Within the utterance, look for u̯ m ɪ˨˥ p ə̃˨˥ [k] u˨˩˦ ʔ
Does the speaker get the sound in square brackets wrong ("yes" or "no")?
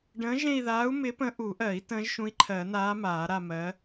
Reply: yes